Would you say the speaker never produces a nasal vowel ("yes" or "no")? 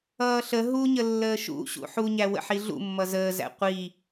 yes